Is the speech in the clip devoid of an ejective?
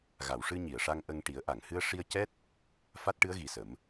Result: yes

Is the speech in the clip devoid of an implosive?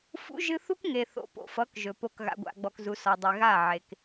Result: yes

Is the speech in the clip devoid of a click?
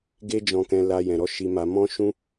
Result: yes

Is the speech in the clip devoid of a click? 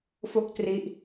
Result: yes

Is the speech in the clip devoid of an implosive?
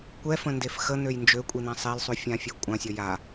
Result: yes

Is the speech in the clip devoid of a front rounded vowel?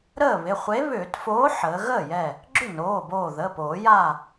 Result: no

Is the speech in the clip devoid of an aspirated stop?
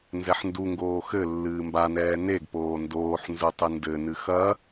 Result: yes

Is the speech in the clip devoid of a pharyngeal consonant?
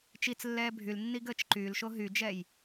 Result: yes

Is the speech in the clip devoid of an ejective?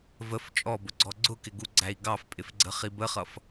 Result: no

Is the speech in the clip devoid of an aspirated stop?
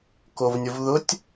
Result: yes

